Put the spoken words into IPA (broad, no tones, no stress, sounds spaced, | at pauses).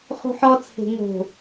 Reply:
χ ṳ ħ ɔ t͡sʰ e̤ ŋ o̤